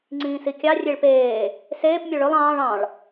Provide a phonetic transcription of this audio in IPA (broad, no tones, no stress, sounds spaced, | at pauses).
ŋ͡ǀ ĩː s i kʲ ɑ rʲ e ɭ p eː | s eː p mʲ o ɭ ɵ lˠ ɑ̃ː ɭ ɑ̃ ɭ